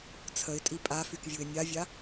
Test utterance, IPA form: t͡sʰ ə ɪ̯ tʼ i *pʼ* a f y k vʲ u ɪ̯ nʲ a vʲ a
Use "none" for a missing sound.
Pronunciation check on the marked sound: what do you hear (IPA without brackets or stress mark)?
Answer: pʼ